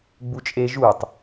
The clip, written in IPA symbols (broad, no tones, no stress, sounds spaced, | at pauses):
ɡ͡b u t͡ʃʼ e ʒ u tˤ